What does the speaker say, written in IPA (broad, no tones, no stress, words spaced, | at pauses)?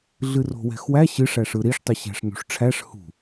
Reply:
ɮɨro̤wɛ̤xwæ ɕɨʂ æʂɯɾiʂ tˤɨɕæ̤ʂnṳʂʈ͡ʂʰæʂ hṳ